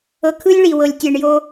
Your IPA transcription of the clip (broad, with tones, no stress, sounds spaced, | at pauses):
ɤ˨ kʰ ɯ˦ lʲ ɭ i˨ w ɤ˨ lʲ tʲ ɛ˨ ɳ j o˦